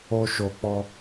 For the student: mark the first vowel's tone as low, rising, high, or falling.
high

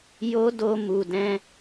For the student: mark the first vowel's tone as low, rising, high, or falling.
high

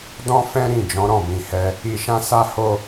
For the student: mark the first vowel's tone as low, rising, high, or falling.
high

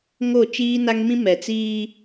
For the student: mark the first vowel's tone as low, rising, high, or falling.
falling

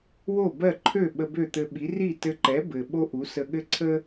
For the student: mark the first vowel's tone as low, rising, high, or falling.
falling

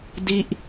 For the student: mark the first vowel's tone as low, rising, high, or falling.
falling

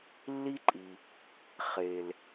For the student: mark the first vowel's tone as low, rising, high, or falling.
high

